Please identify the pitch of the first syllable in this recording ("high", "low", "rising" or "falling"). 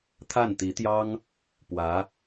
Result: falling